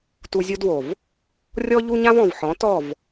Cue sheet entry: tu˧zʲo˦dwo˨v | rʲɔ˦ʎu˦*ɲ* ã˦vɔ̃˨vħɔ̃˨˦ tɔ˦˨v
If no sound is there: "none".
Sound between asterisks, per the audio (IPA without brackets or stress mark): ɲ